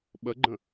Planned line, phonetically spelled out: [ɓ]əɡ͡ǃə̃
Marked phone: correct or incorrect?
correct